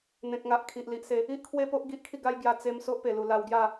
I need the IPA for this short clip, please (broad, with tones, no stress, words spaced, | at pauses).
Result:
n̪ẽ˨k̚ŋa˨ʔkʰi˨ʔ li˨ʔse˨˦ | i˦ʔkʰwe˥˧ po˦ʔ ɡi˦ʔkʰi˥˧ ɡa˦jɡja˧ t͡se˧m so˦ʔpe˨˩lu˨˩ la˧wɡja˥˧